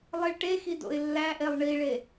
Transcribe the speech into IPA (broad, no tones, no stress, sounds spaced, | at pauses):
lˠ i ɭ ʈ e x i d o̰ ɪ̯ lː æ ʔ e lˠ ɳ i ɭ e